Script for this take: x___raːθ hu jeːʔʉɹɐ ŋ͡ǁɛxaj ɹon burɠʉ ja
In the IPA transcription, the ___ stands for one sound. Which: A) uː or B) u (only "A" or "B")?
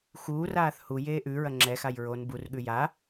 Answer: A